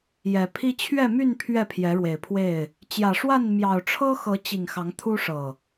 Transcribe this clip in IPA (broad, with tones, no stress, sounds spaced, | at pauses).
j ɛ˨˩ pʰ i˦ t͡ɕʰ ɥ ɛ˥˨ m y˥˨ n pʰ ɥ ɛ˥˨ pʰ j ɛ˨˦ ɻ w e˨˩ ɪ̯ pʰ w e˥˨ ɪ̯ | t͡ɕ j ä˨˩ ʂ w a˥˨ n m j ɑ˨˩ ʊ̯ ʈ͡ʂʰ ɤ˦ x ɤ˨˦ t͡ɕ i˨˩ ŋ x ɑ˨˦ ŋ t̪ʰ u˦ ʂ ɤ˨˩